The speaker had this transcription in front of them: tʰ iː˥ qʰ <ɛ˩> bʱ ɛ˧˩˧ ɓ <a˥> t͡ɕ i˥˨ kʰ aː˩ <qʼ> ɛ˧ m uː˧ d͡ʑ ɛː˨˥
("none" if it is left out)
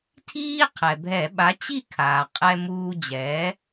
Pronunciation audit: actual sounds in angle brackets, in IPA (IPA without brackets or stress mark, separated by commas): ɛ˩, a˨˥, qʼ